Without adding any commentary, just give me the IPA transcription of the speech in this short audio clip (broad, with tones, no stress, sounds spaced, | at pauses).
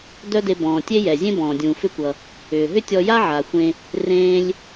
d œ˥ d e˧ b ɔ̃ː˩ tʲ e˥ j ɛ˩ zʲ ẽ˥ b ɔ̃ː˩ dʲ ũː˩ f ʏ˥ kʷ ʌ˩ | ʏː˩ ɦ ʏ˥ tʲ ɔ˧ j a˥ ʕ a˩ xʷ ẽ˧ | r ẽː˧ lʲ